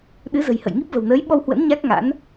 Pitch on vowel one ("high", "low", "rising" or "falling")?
rising